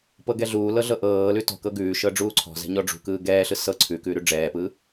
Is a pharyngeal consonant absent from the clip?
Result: yes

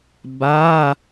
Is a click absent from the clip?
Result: yes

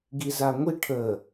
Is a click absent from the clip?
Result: yes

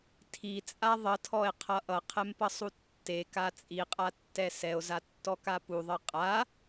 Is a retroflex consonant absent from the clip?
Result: yes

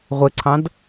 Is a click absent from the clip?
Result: no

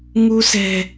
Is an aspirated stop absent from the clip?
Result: yes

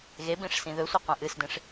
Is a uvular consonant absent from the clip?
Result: no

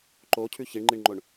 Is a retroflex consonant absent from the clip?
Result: no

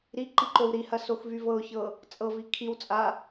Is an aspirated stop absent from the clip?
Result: no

